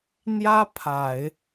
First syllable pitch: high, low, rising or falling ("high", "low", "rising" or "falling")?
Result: high